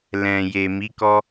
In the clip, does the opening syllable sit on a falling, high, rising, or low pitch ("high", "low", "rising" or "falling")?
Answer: low